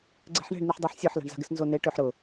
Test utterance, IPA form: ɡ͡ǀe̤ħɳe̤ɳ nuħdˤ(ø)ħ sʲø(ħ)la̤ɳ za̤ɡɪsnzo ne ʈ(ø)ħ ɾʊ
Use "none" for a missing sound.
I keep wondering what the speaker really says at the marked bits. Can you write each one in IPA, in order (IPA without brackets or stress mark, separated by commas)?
ø, ħ, ø